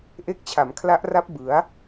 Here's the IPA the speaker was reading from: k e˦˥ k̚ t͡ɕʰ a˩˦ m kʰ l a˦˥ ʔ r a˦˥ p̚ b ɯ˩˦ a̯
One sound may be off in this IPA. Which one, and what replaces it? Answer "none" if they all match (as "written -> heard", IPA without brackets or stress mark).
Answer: k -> ʔ